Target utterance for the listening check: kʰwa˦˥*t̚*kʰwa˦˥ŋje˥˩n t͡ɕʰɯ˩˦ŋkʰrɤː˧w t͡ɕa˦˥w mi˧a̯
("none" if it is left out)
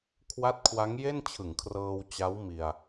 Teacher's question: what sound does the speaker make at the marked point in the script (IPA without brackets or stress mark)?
t̚